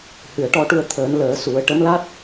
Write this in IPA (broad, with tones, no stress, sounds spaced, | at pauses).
h ɨ˨˩ ə̯ ʈ ɔ˧ ʈ u˧ ə̯ t̪ʰ əː˨˩˦ n l əː˨˩˦ s u˨˩˦ ə̯ ʈ ə˧˥ m l a˦˥ t̚